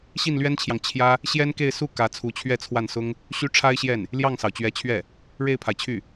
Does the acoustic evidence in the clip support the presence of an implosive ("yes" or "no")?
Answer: no